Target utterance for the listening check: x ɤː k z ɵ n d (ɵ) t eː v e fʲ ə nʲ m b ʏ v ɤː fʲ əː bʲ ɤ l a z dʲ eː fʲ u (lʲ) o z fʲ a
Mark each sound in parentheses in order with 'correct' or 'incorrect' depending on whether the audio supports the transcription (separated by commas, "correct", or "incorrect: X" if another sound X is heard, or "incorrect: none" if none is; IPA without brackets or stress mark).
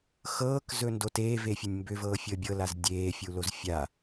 incorrect: o, incorrect: l